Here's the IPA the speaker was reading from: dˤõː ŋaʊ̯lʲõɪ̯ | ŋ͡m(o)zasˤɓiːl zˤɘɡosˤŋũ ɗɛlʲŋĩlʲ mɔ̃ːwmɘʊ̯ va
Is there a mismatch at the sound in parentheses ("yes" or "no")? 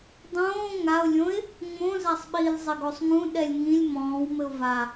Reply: yes